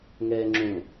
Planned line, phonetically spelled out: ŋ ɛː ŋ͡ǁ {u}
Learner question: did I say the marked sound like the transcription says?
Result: no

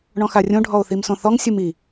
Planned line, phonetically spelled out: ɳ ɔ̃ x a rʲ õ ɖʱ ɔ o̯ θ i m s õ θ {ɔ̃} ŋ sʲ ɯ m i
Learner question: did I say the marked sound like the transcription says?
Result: no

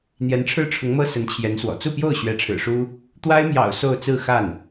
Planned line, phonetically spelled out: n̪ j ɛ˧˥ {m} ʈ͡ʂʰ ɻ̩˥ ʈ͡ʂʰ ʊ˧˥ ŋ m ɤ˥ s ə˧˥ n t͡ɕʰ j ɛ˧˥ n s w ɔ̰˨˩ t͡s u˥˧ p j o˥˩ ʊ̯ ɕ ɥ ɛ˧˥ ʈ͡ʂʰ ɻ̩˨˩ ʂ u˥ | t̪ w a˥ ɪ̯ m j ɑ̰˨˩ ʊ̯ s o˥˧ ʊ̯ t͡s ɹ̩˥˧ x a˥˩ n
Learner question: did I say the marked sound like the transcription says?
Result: no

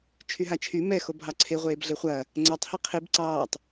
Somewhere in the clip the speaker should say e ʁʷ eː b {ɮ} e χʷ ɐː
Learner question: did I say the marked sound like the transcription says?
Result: yes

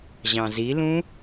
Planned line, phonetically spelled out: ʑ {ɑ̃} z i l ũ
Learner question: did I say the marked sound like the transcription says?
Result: yes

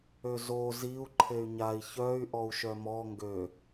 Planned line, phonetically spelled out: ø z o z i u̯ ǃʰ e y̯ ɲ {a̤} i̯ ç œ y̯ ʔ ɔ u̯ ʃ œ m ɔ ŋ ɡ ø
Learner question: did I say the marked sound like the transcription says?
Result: no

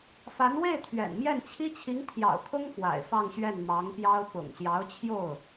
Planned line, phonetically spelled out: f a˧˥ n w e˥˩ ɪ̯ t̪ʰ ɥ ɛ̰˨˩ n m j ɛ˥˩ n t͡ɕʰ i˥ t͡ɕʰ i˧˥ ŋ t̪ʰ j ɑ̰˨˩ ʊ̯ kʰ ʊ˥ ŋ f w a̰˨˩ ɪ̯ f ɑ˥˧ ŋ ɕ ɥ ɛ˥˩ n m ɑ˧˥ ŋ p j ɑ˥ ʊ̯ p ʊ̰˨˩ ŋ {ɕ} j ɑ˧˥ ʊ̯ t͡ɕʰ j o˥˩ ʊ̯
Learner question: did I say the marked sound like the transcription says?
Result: yes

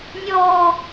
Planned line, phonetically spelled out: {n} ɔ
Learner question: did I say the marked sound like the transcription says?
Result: no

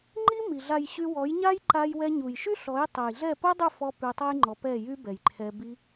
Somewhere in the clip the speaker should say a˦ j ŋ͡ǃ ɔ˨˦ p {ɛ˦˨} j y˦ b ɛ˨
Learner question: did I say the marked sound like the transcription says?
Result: yes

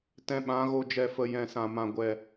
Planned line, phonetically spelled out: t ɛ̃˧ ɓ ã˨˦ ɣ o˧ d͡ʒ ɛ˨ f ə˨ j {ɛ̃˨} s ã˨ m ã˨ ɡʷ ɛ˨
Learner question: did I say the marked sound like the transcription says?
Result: yes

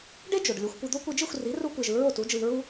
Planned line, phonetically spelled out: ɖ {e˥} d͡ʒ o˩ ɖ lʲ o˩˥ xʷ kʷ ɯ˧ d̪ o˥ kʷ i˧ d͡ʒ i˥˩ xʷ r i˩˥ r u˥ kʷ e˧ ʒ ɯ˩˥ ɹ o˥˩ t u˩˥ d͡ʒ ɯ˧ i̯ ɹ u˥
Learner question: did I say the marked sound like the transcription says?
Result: yes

